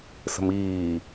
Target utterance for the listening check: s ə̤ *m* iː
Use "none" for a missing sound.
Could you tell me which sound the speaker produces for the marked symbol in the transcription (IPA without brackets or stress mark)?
m